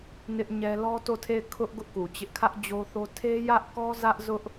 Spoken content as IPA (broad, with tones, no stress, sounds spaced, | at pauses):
n ɪ˦ ʔ ɲ ɛ˦ l ɔ˦ t o˦˨ tʰ e˦˨ ɪ̯ kʰ ʊ˦ ʔ ɡ ʊ˦ ʔ k u˨ t͡ɕ ɪ˦ ʔ kʰ ä˦ ʔ d͡ʑ o˦ θ o˦ tʰ e˦ j ä˦ ʔ k ɔ˦ z ä˦ ʔ z ʊ˦ ʔ